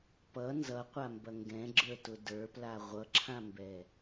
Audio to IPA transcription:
p ʌ n z ʌ qʷ a m b ɐ ŋ ɡ ɛ̃ ɡ͡ǁ ə˞ t ʊ d ə˞ p l a ʁʷ ʌ ǁʰ ã m b ɛ

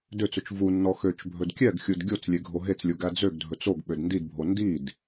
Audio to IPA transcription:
d ø t͡s ɵ t͡ʃ v u nː ɔ x ø t͡ʃ bʱ ɵ d kʲ ɛ ɡ xʲ u d ɡʲ o t͡s lʲ e ɡʱ o ɦ e t͡s lʲ u ɡ æ d͡z ø ɡ dʱ ɵ t͡s o ɡ ɓ ø d n d i d bʱ o n d i d

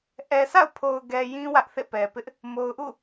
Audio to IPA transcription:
ʔ ɛ˨ sʰ a̰˦˨ ʊ̯ pʰ o˨ ʊ̯ ɡ ɛ˨ j ĩ˦ w ä˦ ʔ θ ḛ˦˨ p ɛ˨ p ɪ˦ ʔ | m o˨ ʊ̯ ʔ ṵ˦˨

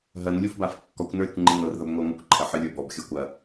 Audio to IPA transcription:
ɦ ɐ n lʲ u f b a f kː ɔ kʷ n ə˞ ɾʲ ɐ kʷ ŋ͡ǃ i n ɤ r ð ɐ b ŋʷ ə˞ ŋʷ ɨ kʷ ǃʰ ɐ ħ ɨ lʲ ə˞ b ɔ b xʲ ɤ kʷ ɐ

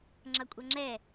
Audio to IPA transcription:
ŋ͡ǁ ʌ kʷʼ ʌ ŋ͡ǁ ɛ

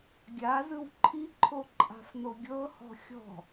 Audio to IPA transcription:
ɡʲ a z ɯ w ǃʰ i ǃʰ o ǃʼ a̤ f n̪ o ɡʲ ɤ h ɔ̤ xʲ ɔ̤

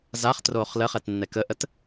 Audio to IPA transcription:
z a χ t r oː χ l ə χ ɛ t nː ɛ k ə ʔ ə t

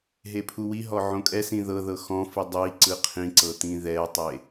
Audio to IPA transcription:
ɦ e pʰ u w i ɦ ɔ ʕ õ kʼ ɛ s ĩ ð ɤ ð ɤ x ɔ̃ f i dˤ i ǀ ɯ qʰ ĩ ǀ ɤ t̪ ĩ ð ɛ tˤ e

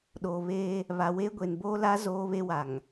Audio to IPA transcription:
ɗ oː˨ β eː˦ | β a˨ w eː˦ ɡʷ e˨ n b oː˦ l a˦ z oː˦ β e˦ w a˨ ŋ

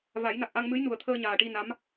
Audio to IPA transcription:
v a˨˩˦ j n a˨˩ k̚ ʔ a˧ ŋ m ɨ˧˥ j n u˨˩ ə̯ t̪ʰ əː˧ ɲ aː˨˩ ʈ i˧ n a˧˥ m

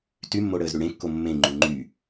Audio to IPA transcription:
t y mː o ɽ əː z ɾ y ɽ ẽ kː o mː ẽ ŋ͡ǃ y ŋ͡ǃ y

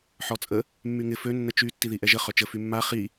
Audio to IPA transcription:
ħ ɔ t͡sʼ ə | mː y ŋ ɪ f ø nː ə t͡ʃ y tː i ð i ʔ ɛ ʒ ə χ œ t͡ʃ ə f y mː a χ i

